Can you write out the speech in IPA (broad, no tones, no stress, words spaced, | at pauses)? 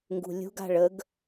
ŋɡṳlʲṳɡa̤ɭ əɡ